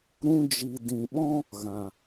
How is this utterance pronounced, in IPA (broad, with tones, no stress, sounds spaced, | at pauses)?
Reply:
ɾ ũ˧ d͡ʒ i˨ d ĩ˨ ɓ ɔ̃˦ | ɣ ã˨